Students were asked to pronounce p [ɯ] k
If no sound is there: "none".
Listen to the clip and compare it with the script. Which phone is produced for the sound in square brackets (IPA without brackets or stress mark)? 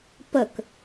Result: ə